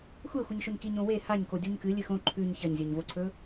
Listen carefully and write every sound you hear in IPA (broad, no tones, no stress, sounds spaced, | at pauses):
xʷ e xʷ ɨ ɲ ʃ ɵ ɲ k i ɲ õ w e h a ɲ k o dʲ u ɲ k ɨ lʲ ɨ x õ ǃʰ ʉ ɲ ç ɐ ɲ zʲ ɵ ɲ v o ǀʰ ɵ